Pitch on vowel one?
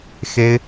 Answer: high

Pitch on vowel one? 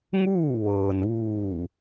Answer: falling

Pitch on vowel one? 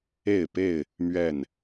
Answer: falling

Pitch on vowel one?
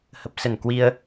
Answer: low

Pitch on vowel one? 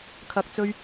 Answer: low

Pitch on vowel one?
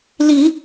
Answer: low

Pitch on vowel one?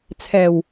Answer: low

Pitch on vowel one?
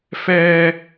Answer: high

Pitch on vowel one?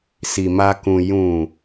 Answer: low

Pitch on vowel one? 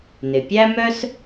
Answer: low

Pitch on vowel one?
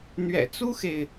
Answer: low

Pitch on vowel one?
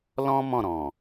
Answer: high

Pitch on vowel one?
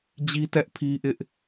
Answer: high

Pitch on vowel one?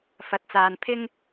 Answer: rising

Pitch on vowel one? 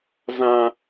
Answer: high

